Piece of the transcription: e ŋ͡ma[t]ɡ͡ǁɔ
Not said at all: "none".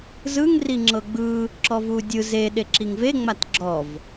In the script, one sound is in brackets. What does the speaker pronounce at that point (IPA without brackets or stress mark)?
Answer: t